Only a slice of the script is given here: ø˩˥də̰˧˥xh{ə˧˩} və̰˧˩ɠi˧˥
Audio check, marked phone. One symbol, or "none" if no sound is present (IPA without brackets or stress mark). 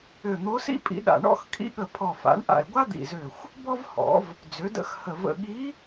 ə˧˩